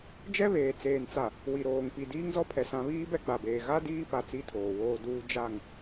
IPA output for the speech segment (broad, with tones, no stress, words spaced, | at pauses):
d͡ʒɛ˦βeː˨ t͡seː˨nt͡sa˨ | wi˨ɾoː˨ŋ pi˨ diː˦ŋzɔ˦pʰɛ˨ sã˦ βiː˦bɛ˦ɡ͡ba˨beː˨ ɣa˦ diː˦ pa˨ t͡si˦tʰoː˨woː˦duː˦ d͡ʒa˦˨ŋ